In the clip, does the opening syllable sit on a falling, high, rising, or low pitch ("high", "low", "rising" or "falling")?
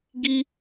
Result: high